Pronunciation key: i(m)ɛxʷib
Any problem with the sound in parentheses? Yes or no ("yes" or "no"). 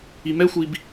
no